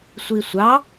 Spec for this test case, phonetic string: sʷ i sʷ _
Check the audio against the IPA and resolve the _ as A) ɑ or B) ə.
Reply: A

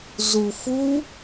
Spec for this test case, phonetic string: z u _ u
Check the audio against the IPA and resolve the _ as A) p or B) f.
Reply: B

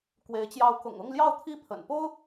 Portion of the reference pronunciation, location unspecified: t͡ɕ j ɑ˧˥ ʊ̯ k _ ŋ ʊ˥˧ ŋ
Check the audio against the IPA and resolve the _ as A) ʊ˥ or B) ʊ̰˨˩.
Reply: B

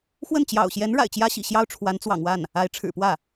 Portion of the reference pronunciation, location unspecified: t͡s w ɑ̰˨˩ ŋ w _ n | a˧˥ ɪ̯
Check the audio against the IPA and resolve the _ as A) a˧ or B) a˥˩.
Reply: B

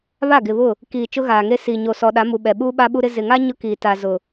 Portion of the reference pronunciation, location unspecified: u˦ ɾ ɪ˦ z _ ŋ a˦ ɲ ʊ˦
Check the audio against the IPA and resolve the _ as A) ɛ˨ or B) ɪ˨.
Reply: B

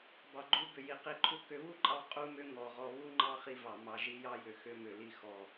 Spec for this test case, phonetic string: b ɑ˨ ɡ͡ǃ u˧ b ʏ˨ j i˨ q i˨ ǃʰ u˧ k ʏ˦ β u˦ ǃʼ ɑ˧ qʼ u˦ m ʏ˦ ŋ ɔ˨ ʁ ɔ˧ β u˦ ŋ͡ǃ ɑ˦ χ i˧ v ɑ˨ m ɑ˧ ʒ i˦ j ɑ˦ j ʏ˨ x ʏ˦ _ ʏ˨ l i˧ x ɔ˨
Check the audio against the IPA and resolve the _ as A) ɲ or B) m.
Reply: B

